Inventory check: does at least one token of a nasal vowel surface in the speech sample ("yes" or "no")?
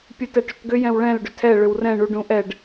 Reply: yes